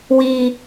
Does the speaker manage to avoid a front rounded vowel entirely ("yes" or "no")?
yes